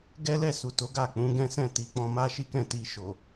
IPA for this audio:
ɡ ɛ˦ l ɛ˦˨ s u˨ t o˨˦ ɡ a˦˨ k͡p ũ˨˦ ɡ ɛ̃˦ s ɛ̃˦˨ t i˨˦ k͡p ɔ̃˧ m a˦ ʃ i˦ k ɛ̃˦˨ t i˧ ʃ o˨

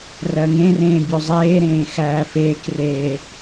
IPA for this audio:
r ɜ ŋ ẽ r ẽː bʲ u zˤ eː ɾ ẽː x æː f eː k r eː

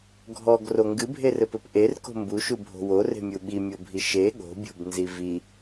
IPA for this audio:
ɡʱ ɔ ɡ r o ŋ ɡ ɨ bʱ e r ɘ p ɘ p ʔ e r k o̤ m b u ʃ u bʱ o̤ w o r e̤ mʲ u ɓ i mʲ o bʱ i ʃ e ɠ o̤ bʲ o̤ b n z i v i

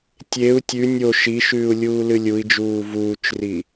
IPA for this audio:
tʲ e u̯ tʲ ʉ nʲ o ʃ i ʃ ʉː u̯ lʲ uː l ɨ lʲ u i̯ d͡ʒ uː v uː t͡ʃ r i

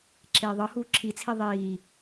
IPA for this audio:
ǁ eː ðˤ ɤ h uː ǁʰ i t͡sʰ i ðˤ iː

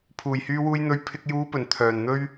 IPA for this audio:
pʰ uː˨˩ j h yː˨ w uː˨ j n̪ ɵ˨ ɥ pʰ ɪ˨ k̚ j uː˨˧ p ɵ˨˩ n t̪ʰ œː˨˩ n n̪ ɵ˧ ɥ

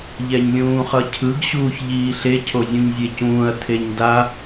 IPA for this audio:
ʎ ɛ ɲ lʲ ũː χ ʌ cʰ ɯ ɡ ɕ uː ç ʎ iː ɬ e cʰ o zʲ ũ ɲ zʲ e c ũː ɐ̯ tʰ e ɲ d a

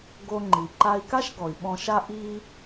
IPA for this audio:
ɡ o˧ ŋ͡ǃ i˩ ǃ a˧ i̯ k a˥ ʃ ɡ ɔ˩ i̯ ɓ ɔ̃˧ ʃ a˥ ʔ i˥

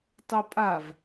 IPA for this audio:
tˤ o pʼ a v

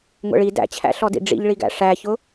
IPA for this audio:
ŋʷ ɛ̰ ɭ i d æ̰ t͡ɕʰ æ̰ ɬ ɔ d ḭ ɖ͡ʐ ḭ ʎ ɭ i ɡ æ̰ ʂ æ ç ʊ

